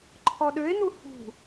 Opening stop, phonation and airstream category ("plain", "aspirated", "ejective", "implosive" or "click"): click